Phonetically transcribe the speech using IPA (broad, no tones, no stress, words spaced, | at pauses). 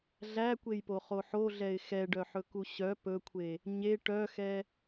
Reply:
ɮækʷejpoχo ħoɮɛɪ̯ xɛɖœħɵku ɕœ pɵkʷʰe | ɲe ʈœxɛ